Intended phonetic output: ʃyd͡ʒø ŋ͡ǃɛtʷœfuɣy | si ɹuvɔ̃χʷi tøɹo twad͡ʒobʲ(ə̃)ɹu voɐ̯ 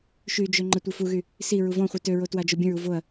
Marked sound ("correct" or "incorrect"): correct